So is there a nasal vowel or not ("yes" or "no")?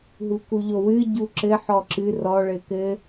no